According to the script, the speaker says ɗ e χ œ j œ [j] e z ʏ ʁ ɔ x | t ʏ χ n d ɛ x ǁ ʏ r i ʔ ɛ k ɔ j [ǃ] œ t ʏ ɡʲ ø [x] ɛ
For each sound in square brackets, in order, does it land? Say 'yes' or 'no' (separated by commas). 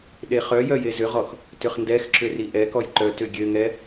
yes, yes, no